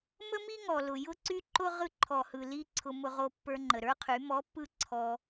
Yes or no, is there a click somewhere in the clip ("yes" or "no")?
yes